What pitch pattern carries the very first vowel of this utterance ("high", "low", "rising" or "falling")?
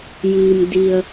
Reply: low